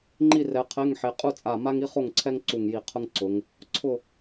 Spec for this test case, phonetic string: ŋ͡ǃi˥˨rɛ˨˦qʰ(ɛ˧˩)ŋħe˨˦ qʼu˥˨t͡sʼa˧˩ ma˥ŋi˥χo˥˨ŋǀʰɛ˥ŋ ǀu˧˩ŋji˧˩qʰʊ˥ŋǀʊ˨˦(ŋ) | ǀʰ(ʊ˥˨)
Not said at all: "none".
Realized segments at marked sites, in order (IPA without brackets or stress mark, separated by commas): ɛ˧˥˧, ŋ, ʊ˥˨